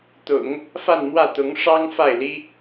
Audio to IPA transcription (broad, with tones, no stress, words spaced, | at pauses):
t̪ʊ̰˨˩˦ŋ | fa˥˧nmwä˥˩t̪ʊ˧˥ŋ ʂɑ˥ŋ fa˥˩ɪ̯li˥